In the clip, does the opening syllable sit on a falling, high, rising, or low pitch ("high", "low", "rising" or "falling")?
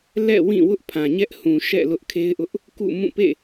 falling